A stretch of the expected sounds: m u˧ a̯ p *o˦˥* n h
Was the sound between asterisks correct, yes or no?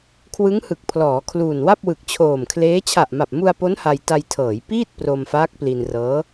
yes